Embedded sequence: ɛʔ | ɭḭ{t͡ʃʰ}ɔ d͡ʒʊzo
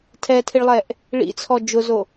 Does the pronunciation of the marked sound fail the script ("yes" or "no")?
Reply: yes